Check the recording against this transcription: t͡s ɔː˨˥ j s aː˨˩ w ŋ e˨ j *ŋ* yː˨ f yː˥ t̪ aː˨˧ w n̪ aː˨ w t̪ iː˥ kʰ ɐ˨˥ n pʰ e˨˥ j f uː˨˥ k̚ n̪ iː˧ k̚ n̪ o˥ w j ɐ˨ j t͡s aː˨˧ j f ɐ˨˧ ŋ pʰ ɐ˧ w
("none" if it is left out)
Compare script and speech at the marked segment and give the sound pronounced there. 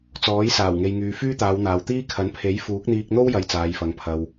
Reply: ŋ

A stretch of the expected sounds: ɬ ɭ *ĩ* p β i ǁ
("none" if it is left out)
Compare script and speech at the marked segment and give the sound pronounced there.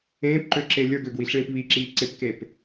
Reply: ĩ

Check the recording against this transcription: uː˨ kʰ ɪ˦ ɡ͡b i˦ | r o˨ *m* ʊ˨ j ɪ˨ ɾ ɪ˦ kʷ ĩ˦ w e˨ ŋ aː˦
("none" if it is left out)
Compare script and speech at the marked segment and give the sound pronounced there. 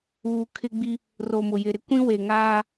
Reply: m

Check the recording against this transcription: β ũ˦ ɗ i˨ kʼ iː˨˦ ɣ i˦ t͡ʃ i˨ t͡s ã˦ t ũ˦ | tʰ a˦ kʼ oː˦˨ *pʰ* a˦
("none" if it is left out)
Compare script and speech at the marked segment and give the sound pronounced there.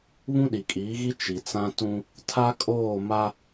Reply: m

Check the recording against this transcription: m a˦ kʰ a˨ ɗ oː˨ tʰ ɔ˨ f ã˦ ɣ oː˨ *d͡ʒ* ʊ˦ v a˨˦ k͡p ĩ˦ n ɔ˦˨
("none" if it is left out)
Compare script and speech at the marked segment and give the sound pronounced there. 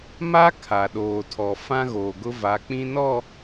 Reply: ɡ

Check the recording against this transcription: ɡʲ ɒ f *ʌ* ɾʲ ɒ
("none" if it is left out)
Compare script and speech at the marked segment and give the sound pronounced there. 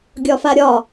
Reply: a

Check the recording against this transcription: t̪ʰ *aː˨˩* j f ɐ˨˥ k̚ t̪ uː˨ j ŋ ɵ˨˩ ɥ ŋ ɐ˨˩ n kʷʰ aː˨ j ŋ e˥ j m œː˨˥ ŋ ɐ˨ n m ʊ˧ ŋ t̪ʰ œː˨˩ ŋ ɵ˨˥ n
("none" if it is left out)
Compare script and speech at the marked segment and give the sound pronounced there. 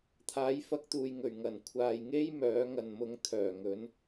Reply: aː˨˥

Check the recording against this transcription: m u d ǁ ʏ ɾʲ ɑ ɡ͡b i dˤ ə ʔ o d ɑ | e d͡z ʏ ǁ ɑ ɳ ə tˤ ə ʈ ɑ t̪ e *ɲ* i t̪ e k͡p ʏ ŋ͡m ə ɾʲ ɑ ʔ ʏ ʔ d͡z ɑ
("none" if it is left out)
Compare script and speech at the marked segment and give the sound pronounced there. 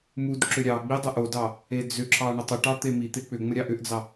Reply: m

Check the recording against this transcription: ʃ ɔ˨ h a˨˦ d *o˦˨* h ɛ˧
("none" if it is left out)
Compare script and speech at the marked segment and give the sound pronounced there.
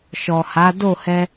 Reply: o˦˨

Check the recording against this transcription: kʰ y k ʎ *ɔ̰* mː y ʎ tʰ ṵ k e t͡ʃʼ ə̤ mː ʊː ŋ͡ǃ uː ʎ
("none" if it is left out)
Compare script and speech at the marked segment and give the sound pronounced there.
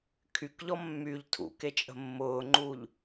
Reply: ɔ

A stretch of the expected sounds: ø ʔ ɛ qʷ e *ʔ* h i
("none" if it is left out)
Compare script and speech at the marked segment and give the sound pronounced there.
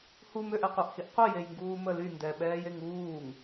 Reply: ʔ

